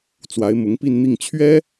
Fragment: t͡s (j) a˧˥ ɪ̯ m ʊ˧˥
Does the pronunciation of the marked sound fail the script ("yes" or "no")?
yes